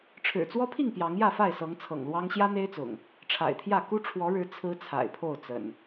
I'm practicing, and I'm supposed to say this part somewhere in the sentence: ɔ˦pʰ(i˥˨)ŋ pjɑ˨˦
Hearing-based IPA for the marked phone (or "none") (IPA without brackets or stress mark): i˥˨